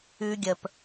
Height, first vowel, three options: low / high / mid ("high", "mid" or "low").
high